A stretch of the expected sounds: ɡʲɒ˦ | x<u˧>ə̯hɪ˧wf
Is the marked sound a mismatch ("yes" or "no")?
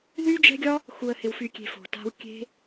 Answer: no